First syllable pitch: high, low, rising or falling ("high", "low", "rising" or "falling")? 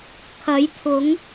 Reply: rising